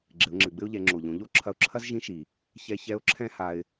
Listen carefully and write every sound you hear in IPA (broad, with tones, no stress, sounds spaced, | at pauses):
ɡ͡ǁ ɘ˩˧ ʊ̯ ŋ͡ǁ ɘ˩ ɡ͡b ɘ˥ ʊ̯ ʎ ɛ˩˧ ŋ͡ǁ o˩ ʎ õ˩˧ ʎ o˥ ǁʰ ɐ˧ ʊ̯ ǁʰ ɐ˥ z ʒ ĩ˧˥ ʃ i˩ | ç ɛ˧ ç ɛ˧˥ ʊ̯ ǁʰ ɛ̃˥ h a˧ ɪ̯